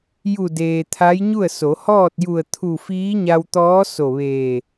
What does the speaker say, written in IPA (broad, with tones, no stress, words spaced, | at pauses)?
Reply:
ju˧˩deː˩ t̪ʰa˧˥jɲu˥˨ə̯so˩˧ hɔː˥˨t̚ju˧˩ə̯ t̪ʰu˧˩fiː˧˥ ɲa˧wt̪ɔː˧˥ so˧˩ʋeː˧˩